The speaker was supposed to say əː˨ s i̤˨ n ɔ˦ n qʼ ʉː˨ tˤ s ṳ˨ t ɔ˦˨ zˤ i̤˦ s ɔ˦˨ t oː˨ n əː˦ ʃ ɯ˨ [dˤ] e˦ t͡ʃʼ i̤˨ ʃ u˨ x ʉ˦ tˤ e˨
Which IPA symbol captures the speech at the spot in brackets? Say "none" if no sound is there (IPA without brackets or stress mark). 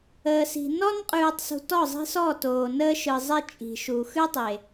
zˤ